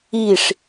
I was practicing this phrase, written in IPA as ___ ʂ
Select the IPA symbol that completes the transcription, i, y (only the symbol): i